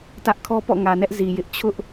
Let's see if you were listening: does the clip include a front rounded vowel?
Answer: no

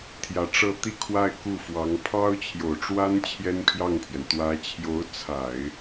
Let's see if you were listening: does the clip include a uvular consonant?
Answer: no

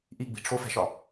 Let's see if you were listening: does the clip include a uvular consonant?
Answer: no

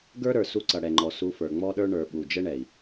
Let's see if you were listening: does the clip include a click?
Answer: yes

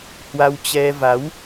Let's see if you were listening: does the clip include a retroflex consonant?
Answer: no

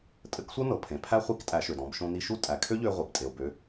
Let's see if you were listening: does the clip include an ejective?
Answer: yes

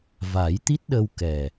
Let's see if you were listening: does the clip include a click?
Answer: no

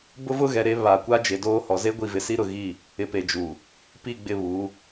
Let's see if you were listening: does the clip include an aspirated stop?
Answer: no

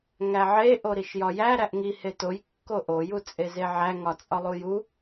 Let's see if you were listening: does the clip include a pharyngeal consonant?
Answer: yes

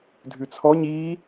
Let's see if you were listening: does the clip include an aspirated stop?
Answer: yes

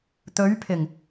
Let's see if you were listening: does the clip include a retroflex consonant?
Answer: no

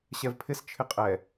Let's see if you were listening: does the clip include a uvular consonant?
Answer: yes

